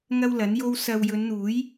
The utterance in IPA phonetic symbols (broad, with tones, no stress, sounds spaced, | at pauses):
ŋ ɐ˥ w l ɐ˨˥ n j o˥ w s ɐ˧ w j ɵ˨˧ n n̪ uː˨˥ j